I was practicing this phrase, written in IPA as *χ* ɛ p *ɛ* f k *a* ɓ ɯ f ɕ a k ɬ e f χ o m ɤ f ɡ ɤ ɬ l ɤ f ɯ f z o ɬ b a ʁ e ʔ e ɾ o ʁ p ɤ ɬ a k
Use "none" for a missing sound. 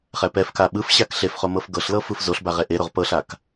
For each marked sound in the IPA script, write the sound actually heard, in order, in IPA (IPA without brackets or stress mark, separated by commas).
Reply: χ, ɛ, a